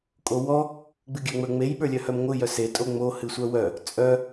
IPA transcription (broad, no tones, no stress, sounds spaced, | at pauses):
kʼ o w ɔ | ɡ͡b ɨ ɡʲ œ ŋ͡m ə˞ ŋ͡m e j ɓ ə˞ lʲ œ h œ m ŋʷ ɨ j œ s e tʼ o ŋ͡m o h ɨ sʷ œ w œ | t͡sʼ œ